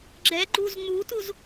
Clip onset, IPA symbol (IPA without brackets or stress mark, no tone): ɡ͡ǁ